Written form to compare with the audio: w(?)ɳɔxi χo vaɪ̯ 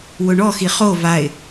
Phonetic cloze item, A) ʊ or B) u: A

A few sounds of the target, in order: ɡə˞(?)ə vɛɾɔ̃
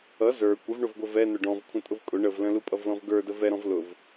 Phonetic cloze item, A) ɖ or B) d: B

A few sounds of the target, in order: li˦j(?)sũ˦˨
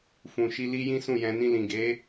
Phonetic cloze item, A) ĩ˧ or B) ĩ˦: B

